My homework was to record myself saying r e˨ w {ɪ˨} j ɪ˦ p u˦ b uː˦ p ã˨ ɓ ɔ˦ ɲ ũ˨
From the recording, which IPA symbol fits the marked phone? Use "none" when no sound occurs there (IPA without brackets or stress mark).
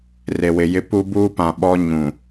ɪ˨